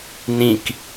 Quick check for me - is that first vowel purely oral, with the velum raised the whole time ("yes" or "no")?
no